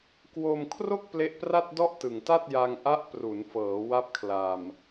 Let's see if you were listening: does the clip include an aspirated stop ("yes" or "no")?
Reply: yes